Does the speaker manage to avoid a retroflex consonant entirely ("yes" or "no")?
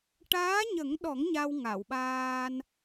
no